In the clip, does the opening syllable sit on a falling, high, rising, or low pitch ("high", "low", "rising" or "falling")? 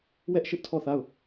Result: high